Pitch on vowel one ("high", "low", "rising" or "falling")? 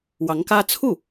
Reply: rising